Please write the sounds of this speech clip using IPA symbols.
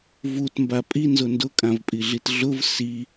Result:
v u t m b a pʼ i n z ʊ n d ʊ kʼ ã v pʼ i ɮ i t ɮ ʊ v s i

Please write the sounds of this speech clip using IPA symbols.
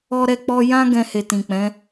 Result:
ɔ˦ ɾ ɛ˦ k͡p ɔ˦ j ã˦ ɡ ɛ̃˧ h e˨ t ĩ˨ k͡p ɛ̃˨˦

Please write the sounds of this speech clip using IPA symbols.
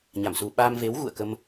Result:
ɲ a˧˩ m s u˨˩ ɓ aː˧ m v e˨˦ w ɣ ṵ˧˨ ə̯ k ə˧ m

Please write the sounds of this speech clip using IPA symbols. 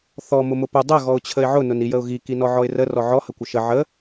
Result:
θ ɔ m ʊ m ʊ p ʊ dˤ ə ɣ ɔ ʊ̯ t͡ɕʰ ə ɪ̯ ʕ ʊ n ʊ n i j ə ʊ̯ ɣ i k i n ɔ ʕ ɔ ɪ̯ r ə r ɔ ʕ ɔ h ə kʷ ə ʃ ə ʕ ə

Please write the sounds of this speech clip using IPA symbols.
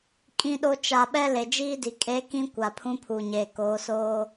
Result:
kʼ ĩ˦ ɗ o˦ t͡ʃ a˨ ɓ ɛ˦ l e˨ d͡ʒ iː˦ d i˨ kʼ eː˦ k ĩ˦ kʷ a˨ pʰ ũ˦ pʰ uː˨ ɲ eː˨ k oː˨˦ s oː˦

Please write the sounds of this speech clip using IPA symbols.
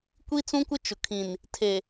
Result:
kʷ i˦ t͡s ũ˦ kʷ ɪ˦ t͡ʃ ʊ˨ kʰ ĩ˨ n | tʰ e˨

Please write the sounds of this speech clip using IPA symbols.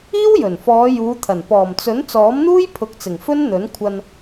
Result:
iː˥ w j ɵ˨˩ n f ɔː˨˧ j uː˨˧ t̪ʰ ɐ˨˩ n p ɔː˨˩ m t͡s ɵ˨˥ n t͡s ɔː˨˥ m n̪ uː˥ j pʰ ʊ˨˥ k̚ t͡s ɪ˨˩ ŋ f ɵ˥ n n̪ ɵ˨˥ n kʷʰ ɐ˧ n

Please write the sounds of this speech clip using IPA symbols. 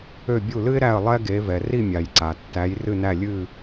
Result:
ø˦˨ bʲ u˦˨ l ɨ˥ ɪ̯ ɾ æ˦˨ ə̯ lˠ ɛ˥ ɡ e˨˦ v ɛ˩ r i˦˨ mʲ a˩ j ǀ a˩ tː æ˨˦ j r ɨ˦˨ n æ˦˨ lʲ ɨ˦˨

